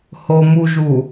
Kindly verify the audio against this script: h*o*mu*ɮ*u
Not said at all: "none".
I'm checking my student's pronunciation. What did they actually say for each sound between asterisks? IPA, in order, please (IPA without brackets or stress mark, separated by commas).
o, ʒ